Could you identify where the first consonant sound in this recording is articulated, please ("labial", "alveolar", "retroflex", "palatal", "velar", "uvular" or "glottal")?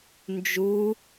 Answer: alveolar